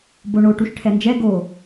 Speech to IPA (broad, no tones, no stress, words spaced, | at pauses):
boɳo ʈuʃʈʰɛnd͡ʒɛ ɡo